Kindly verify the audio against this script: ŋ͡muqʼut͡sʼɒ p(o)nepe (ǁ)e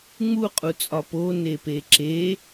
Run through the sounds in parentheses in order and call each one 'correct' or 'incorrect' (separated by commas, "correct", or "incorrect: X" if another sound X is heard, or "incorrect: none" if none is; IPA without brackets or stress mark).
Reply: correct, correct